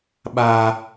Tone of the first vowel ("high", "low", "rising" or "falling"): low